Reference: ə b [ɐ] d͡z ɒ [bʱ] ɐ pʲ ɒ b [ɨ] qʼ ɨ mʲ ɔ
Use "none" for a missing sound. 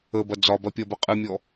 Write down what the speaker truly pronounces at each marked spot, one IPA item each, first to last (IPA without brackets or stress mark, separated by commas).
ɐ, b, ə